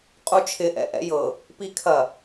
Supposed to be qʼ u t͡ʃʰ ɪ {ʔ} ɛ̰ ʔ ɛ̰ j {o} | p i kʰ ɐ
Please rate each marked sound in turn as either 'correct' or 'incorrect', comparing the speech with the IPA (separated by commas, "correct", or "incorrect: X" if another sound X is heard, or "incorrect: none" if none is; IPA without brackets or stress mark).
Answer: correct, incorrect: ɤ